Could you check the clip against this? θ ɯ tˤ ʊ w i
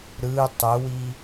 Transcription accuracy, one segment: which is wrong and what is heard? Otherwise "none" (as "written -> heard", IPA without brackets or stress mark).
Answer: θ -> ɾ